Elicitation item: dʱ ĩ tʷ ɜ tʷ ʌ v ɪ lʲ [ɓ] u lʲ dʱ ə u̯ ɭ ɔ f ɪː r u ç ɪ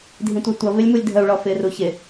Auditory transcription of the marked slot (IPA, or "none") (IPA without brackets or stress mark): m